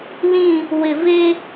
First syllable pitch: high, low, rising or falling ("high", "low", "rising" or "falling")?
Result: falling